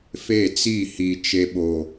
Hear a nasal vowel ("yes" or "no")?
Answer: no